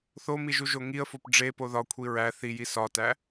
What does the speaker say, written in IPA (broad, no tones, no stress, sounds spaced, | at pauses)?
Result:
θ o m i ʒ u ʒ o ŋ i ə̯ f o p ɖ͡ʐ e p o ð ɒ kʷʰ i ɹ æ θ i j i s ɒ t æ